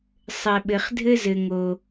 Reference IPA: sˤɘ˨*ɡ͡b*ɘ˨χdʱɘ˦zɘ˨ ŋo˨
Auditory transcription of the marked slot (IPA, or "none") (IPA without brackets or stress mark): ɓ